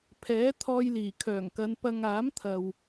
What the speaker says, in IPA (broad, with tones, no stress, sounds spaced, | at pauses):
pʰ ɛː˨˥ t̪ʰ ɔː˧ j l iː˨˩ kʰ œː˨˩ ŋ k ɐ˨˧ n p ɐ˧ ŋ aː˨˥ m t̪ʰ ɐ˨ w